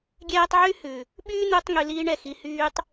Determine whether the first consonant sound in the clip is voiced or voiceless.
voiced